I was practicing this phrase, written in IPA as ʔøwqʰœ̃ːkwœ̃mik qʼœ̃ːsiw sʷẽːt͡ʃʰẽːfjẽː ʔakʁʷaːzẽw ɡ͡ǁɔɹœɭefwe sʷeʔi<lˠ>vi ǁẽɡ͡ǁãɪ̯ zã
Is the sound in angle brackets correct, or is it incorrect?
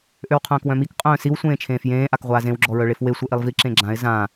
correct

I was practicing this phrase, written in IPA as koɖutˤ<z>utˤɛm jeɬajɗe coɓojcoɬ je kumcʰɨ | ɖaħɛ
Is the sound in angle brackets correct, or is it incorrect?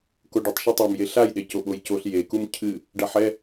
incorrect: ʃ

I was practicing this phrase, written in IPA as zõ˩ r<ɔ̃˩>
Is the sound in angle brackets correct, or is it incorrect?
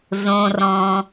correct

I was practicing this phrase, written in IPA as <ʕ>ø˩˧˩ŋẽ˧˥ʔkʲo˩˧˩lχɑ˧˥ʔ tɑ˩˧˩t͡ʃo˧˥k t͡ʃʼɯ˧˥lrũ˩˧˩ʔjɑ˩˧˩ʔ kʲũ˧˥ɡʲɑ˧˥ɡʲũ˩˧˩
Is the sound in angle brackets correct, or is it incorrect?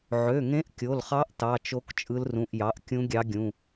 correct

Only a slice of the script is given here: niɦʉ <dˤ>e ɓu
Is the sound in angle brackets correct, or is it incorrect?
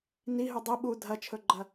correct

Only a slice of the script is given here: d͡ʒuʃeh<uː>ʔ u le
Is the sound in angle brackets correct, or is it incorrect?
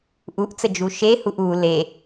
incorrect: u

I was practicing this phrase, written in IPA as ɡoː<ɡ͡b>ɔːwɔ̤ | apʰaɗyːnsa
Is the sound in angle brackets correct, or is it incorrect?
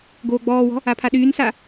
correct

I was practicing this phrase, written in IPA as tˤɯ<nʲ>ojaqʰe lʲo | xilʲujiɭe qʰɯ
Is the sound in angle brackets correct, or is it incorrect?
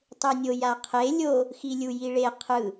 correct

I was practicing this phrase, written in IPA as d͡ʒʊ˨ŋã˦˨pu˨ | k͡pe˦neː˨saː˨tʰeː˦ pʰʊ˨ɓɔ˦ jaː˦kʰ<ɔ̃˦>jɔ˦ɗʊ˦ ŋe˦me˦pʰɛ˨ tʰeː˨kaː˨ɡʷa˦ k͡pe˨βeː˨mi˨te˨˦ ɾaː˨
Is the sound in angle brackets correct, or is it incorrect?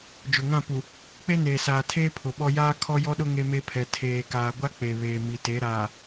incorrect: ɔ˦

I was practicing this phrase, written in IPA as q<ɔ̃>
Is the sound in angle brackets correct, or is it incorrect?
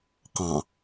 incorrect: ɑ̃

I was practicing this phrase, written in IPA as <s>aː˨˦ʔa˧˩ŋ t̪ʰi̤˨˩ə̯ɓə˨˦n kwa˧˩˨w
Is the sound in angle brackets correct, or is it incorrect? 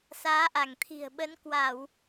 correct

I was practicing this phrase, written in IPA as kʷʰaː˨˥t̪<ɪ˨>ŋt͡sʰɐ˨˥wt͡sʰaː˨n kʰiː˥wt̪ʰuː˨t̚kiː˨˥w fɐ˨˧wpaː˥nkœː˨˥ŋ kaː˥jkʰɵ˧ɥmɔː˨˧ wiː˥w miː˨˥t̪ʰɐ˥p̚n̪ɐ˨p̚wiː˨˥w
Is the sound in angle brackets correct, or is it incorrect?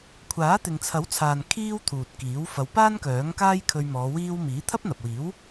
correct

